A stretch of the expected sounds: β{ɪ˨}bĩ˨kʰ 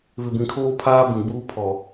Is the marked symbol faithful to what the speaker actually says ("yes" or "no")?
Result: yes